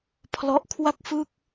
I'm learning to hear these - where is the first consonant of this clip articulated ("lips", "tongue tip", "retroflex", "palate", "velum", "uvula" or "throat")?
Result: lips